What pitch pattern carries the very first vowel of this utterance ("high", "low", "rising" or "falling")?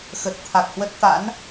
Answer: low